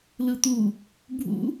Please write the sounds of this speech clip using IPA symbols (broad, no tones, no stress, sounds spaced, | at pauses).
l ɯ t̪ u | bʱ ṵ